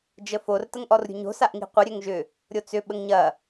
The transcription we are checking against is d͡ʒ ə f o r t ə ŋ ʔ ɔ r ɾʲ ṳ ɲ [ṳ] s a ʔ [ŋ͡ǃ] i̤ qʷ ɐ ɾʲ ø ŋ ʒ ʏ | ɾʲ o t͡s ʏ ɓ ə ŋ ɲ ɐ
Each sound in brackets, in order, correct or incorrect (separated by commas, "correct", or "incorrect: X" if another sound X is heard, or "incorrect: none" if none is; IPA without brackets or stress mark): incorrect: o̤, incorrect: ŋ